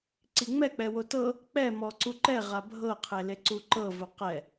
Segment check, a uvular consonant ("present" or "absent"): present